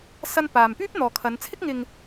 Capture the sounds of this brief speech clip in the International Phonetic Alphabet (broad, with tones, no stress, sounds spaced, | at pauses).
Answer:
s ɐ˥ n p aː˨ m p yː˥ p̚ n̪ ɔː˨ kʰ ɐ˨˧ n t͡sʰ ɪ˥ k̚ ŋ ɪ˧ ŋ